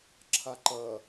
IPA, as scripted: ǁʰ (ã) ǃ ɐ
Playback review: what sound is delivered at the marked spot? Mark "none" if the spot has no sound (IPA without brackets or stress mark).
a